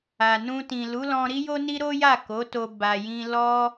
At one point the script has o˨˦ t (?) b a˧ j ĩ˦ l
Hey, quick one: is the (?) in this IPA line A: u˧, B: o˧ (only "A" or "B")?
B